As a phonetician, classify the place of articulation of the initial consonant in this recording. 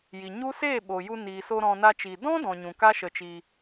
palatal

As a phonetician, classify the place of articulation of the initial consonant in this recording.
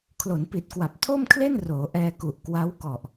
velar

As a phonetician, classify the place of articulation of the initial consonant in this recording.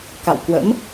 velar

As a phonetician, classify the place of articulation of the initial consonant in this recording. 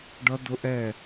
retroflex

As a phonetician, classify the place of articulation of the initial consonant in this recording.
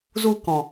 alveolar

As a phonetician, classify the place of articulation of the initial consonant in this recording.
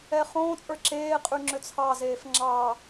uvular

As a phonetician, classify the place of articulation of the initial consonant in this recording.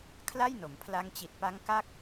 velar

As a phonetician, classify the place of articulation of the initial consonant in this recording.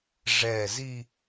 retroflex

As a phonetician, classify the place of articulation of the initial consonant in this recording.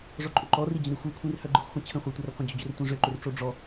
retroflex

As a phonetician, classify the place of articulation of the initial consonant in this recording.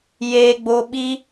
palatal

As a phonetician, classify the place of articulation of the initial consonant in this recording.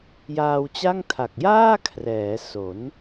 palatal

